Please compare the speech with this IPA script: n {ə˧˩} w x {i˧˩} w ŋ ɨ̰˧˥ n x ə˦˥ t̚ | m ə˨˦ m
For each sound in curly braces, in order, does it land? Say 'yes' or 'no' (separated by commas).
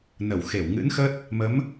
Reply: yes, no